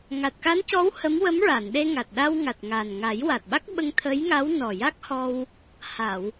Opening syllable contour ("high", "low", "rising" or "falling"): low